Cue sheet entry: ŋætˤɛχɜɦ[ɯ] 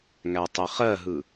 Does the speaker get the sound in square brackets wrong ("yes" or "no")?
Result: no